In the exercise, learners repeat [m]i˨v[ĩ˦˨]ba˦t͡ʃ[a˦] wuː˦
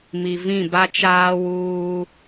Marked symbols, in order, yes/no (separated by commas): yes, yes, no